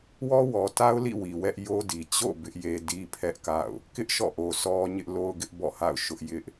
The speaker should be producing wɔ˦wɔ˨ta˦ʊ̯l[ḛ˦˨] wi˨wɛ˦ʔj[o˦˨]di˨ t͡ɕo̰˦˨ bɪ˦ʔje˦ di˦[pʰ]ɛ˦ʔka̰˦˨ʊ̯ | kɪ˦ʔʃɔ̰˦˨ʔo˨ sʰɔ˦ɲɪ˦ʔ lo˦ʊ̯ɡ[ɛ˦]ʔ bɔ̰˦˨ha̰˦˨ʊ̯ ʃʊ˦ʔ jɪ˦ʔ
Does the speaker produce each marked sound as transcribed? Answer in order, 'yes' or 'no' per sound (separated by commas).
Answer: no, no, yes, no